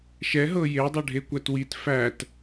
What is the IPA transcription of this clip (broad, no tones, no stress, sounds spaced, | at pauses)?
ʃ ɛ ɦ ɤ j e dˤ ɤ ɖʱ e kʷ æ t w i t f æ t